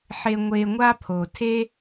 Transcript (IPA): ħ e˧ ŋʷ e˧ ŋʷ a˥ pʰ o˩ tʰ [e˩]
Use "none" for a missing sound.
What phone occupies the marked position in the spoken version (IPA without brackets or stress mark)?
e˥